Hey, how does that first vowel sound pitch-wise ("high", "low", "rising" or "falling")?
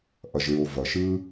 low